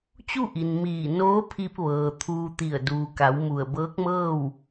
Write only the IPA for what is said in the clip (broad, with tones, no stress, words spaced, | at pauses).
t͡ɕu˥˨ʔi˩n miː˧˩ noː˧˥pʰi˧p̚ʋɤː˩ t̪ʰuː˧t̪i˧˩ə̯ duː˩ka˩˧w mu˧˩ə̯ bɤː˧˥k̚mɤː˥˨w